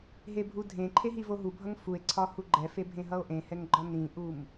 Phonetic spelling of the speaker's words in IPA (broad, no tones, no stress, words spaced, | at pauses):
ɦebʱudʱẽǃʰe ɦivoɦubʱʌŋ fue̯ǀʰɒ huɡ͡ǃɛfe bʱẽɦʌo̯ʔẽhɛŋ ɡ͡ǃɒnĩʔum